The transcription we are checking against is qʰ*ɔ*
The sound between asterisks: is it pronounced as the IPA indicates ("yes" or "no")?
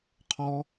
yes